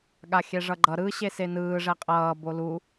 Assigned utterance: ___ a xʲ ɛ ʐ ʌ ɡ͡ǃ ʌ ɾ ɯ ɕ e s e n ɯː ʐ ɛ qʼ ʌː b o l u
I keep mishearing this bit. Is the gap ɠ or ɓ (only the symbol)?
ɠ